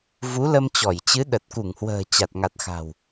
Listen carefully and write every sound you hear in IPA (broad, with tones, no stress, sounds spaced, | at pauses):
v u˨˦ l ə˧ m t͡ɕ ɔ˧˩ j t͡ɕ ɨ˨˦ ɗ ə˨˩ t̚ k u˧˩ ŋ h w ə̤ː˨˩ t͡ɕ a˨˩ t̚ ŋ a˨˩ t̚ x a̤˨˩ w